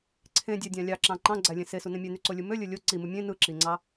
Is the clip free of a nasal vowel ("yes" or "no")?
no